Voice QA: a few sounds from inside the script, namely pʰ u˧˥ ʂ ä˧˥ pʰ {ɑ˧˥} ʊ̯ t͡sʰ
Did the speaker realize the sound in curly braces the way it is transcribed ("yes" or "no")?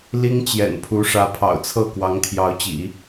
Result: no